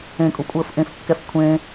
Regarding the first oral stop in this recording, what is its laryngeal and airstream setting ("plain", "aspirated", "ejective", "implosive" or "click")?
ejective